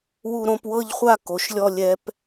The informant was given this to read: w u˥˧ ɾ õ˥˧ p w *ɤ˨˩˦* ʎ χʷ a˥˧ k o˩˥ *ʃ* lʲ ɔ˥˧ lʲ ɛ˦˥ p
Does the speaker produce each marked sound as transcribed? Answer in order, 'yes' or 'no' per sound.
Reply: no, yes

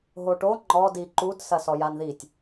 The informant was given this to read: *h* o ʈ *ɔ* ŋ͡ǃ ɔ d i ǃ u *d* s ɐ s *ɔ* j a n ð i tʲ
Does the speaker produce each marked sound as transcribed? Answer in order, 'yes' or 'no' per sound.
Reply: no, no, yes, yes

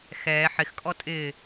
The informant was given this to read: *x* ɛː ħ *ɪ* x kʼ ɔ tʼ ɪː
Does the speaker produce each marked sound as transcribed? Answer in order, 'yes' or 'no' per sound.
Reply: yes, yes

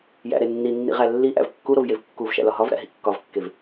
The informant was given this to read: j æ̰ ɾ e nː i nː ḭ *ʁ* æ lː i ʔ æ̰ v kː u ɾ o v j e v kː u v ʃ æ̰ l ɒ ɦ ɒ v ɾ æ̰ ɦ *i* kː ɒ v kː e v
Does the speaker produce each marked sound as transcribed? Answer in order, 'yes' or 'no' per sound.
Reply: yes, no

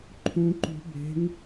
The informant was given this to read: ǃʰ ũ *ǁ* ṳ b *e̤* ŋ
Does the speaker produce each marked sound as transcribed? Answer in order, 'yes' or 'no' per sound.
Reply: no, yes

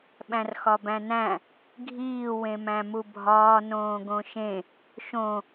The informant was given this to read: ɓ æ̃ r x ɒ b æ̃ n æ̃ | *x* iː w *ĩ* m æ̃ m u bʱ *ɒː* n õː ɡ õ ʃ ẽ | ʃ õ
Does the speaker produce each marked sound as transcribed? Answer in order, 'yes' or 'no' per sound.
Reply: no, no, yes

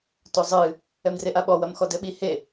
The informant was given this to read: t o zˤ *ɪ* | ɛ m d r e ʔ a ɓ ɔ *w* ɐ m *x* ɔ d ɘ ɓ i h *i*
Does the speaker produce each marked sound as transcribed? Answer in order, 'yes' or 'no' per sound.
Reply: no, yes, yes, no

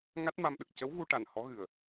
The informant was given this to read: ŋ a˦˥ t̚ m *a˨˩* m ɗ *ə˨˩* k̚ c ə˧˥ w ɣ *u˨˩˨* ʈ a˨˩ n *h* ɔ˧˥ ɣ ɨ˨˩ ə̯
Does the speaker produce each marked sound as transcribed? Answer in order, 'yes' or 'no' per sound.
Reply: no, yes, no, yes

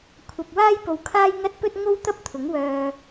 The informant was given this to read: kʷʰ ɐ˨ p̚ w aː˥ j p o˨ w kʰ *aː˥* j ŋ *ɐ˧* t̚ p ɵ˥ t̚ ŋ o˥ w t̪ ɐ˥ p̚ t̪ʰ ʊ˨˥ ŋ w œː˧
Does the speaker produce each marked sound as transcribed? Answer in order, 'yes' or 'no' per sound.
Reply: yes, no

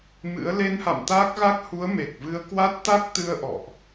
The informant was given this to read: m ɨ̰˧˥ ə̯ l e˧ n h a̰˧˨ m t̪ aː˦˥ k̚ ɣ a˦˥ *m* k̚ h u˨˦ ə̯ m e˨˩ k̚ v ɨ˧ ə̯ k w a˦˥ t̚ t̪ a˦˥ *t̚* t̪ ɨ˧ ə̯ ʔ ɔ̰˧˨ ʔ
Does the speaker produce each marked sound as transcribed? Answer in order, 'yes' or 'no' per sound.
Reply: no, no

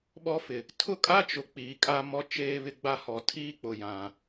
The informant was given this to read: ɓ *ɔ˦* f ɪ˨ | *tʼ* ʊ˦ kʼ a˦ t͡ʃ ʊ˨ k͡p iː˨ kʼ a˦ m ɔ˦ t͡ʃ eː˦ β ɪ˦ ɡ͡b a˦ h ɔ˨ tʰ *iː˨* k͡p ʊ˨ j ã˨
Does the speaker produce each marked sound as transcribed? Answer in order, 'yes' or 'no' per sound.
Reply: yes, no, no

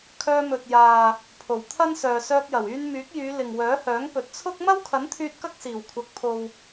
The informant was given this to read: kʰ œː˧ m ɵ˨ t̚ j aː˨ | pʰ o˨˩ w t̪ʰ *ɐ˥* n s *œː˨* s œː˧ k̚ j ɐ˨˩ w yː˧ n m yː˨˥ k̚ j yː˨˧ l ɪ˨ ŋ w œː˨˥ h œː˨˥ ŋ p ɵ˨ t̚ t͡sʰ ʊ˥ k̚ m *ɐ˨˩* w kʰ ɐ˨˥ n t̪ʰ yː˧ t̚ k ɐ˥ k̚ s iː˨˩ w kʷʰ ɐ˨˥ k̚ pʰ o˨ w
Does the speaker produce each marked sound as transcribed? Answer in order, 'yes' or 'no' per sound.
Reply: yes, yes, no

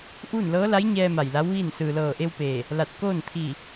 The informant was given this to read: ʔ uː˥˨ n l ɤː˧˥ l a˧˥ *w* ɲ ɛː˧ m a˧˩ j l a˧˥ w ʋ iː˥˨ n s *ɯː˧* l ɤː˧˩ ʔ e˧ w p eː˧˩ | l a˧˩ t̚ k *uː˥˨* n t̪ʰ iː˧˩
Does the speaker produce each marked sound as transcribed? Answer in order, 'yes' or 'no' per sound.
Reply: no, no, no

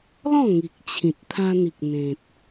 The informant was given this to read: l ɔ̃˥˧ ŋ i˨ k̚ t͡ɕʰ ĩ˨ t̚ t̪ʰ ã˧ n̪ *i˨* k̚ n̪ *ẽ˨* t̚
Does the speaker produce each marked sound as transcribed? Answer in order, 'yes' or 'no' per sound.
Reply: yes, yes

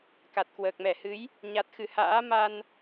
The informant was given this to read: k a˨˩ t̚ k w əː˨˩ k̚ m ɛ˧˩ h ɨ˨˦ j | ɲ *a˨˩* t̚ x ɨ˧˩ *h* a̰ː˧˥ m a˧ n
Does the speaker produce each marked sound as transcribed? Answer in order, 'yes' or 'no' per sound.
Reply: yes, yes

